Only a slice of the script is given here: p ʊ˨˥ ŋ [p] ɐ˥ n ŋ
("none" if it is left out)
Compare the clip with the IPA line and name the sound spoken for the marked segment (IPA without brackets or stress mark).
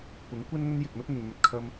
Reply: kʷ